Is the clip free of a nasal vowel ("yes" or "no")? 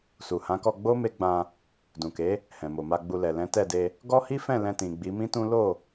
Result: no